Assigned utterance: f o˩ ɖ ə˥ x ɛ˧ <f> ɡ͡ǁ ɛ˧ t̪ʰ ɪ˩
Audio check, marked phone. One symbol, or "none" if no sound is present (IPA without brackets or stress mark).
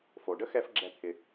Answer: f